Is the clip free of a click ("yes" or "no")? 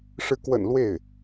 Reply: yes